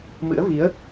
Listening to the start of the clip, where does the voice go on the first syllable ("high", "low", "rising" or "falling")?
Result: rising